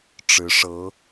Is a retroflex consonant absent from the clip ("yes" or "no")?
no